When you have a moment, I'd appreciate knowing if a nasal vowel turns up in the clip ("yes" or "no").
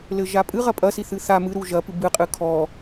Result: no